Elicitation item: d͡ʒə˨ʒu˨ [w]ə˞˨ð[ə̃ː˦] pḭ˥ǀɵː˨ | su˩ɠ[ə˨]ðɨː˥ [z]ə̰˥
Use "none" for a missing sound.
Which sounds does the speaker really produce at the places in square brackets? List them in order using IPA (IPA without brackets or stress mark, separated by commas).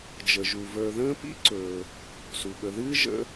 v, ə̃ː˦, ə˨, ʒ